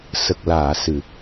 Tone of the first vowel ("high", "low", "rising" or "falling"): low